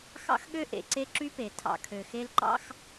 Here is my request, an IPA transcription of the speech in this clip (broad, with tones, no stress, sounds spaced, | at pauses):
x ɑ̰˦ x ɠ ø˦ ʔ ḛ˨ ǀ e˦ ǁ y˦ p e˨ tʰ ɑ̰˨ kʰ ø˨ x e˦ l ǃ ɑ̰˦ x